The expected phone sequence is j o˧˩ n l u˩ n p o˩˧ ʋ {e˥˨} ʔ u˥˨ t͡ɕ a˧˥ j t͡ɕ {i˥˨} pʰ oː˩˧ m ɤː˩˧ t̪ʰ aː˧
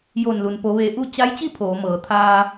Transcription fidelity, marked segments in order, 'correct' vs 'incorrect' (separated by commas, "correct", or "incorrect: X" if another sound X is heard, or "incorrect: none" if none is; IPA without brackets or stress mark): incorrect: e˩˧, correct